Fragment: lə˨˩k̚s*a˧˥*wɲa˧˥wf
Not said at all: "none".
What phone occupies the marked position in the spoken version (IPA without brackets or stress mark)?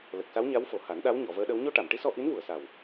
a˧˥